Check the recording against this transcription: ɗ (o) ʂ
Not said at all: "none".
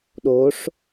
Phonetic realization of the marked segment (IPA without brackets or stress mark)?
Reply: o